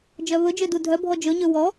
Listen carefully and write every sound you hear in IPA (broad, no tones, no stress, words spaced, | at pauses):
d͡ʒœβɵd͡ʒø dudʱœbʱɔ d͡ʒɵɲø wɔ